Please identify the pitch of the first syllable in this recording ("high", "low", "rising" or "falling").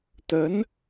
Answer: rising